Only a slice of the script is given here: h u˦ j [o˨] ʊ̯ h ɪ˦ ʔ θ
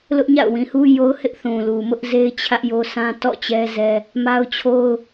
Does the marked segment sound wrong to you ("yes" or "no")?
yes